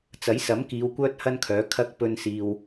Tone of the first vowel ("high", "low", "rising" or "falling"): rising